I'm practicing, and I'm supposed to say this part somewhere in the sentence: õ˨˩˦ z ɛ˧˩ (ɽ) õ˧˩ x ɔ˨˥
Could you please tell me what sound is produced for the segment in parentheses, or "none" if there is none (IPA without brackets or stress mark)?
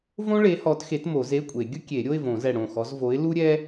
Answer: ɽ